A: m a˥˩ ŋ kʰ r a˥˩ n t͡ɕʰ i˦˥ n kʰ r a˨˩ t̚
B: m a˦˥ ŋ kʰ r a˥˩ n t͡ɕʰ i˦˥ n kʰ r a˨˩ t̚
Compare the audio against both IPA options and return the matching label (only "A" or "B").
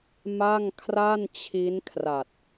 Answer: A